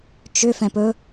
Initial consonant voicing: voiceless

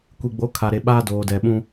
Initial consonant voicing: voiceless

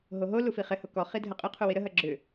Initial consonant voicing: voiced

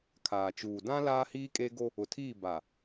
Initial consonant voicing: voiceless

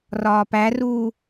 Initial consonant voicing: voiced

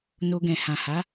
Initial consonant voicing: voiced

